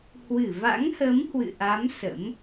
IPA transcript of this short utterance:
hwɨ˧˩va̰˧˥ŋhə˨˦m hwɨ̰˧˨ʔa˨˦m sə̰˧˥m

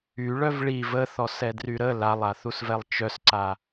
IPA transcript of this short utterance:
yɭœv ɭi vəθɔsɛdry ɾə lalˠaθusvɛlˠ t͡ʃœsǀa

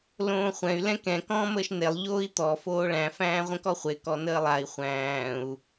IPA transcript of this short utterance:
lõːχʷɛ̃y̯ lɛ̃kɛ̃ kɔ̃ːməːʃnelˠ ʎoːi̯t̪ɔ foːɭæ̃ fæ̃ːʁʷə̃kɔχʷe kɔnəːlˠai̯ χʷæ̃ːu̯

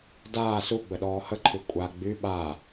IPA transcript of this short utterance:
daː suɡ͡bəɗɔː həǃʰy kʷʼa ɡ͡by ɓa

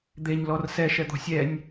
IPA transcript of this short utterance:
d̪eɲ lɔrsɛ ʃɛd̪ɔ̤sʲɛnʲ

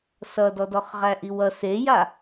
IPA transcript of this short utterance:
sʌdɔdɔχʁæ ʔiwʌ seja

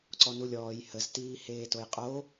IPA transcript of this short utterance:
ǀɔnulʲɔːj həz tiːheːtojqʼo

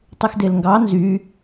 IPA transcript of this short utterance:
tˤyxdelŋɡɑ nzy

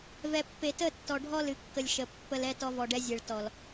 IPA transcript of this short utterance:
vɛ˨pːe˨tə˦˨tːɔ˨ ɖʱɔ˦lɨ˨kːə˨lʲ ʃə˨ pːə˧lɛ˧ tɔ˧vɔ˨ɖɛ˧zʲe˨ɭ tɔ˨l

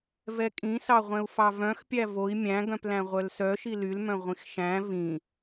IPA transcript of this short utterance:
vɛkʼĩsɑʁʷɛ̃u̯ fɑvœ̃xpʲæ voi̯ mʲæ̃ɡœ̃plæ̃ ʁʷœlsœ ʃilylmœ̃ ʁʷĩxʃæ̃ vĩ

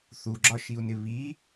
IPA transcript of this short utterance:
θuɡ͡ǁɒʃiu̯nɪ βi

